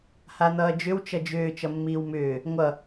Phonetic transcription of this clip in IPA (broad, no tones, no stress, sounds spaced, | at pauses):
h a n̪ ʌː d͡ʒ ʏ w t͡ʃ ʌ d͡ʒ ʏː t͡ʃ ʌ mː iː w m ʏː | ŋʷ ʌ